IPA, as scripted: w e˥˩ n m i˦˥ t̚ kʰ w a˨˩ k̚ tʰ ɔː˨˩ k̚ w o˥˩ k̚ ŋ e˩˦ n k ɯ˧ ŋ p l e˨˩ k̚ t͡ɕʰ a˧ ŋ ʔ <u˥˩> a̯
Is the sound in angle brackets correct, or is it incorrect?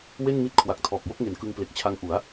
incorrect